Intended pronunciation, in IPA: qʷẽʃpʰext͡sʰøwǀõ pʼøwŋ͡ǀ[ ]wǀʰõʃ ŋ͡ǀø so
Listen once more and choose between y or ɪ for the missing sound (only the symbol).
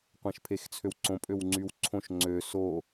y